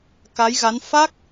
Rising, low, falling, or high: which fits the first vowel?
rising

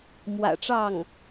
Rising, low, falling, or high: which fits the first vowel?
low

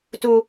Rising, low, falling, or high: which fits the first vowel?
low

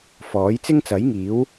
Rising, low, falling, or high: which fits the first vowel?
rising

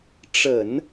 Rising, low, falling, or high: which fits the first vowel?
low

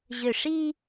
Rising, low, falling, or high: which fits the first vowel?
falling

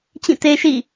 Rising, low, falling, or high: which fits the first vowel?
falling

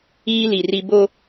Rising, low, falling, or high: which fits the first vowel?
high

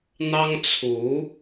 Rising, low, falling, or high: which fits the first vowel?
high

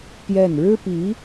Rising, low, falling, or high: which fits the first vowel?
falling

